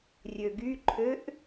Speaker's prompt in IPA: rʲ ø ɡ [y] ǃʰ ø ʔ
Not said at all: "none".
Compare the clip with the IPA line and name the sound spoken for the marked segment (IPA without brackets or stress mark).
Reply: y